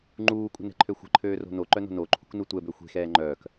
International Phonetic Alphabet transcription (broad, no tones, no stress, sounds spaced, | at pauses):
ŋ͡ǃ uː kʷʼ ə̤ n ɛ̤ ǃʰ ø xʷ ə̤ ǃʰ øː r o̤ n o ǃ œ n o̤ n o ǃʰ ṳ k n u tʷ ɛ b ø xʷ e̤ x ɛː ŋ͡ǃ œː k